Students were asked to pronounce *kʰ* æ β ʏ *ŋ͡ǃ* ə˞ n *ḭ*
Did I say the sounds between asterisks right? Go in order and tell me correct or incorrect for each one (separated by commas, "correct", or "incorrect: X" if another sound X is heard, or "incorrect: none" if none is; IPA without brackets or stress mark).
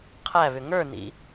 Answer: incorrect: qʰ, incorrect: ŋ, correct